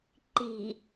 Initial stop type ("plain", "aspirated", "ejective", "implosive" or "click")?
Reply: click